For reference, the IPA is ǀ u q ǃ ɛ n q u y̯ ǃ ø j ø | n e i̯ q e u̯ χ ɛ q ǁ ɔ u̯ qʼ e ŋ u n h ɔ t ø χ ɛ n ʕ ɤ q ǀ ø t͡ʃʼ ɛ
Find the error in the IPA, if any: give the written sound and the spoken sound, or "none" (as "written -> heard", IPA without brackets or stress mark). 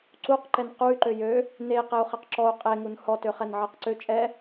none